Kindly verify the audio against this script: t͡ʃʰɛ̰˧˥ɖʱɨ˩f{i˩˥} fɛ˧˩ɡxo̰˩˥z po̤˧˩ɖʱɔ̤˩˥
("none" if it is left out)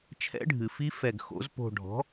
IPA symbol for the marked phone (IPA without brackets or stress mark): i˧˥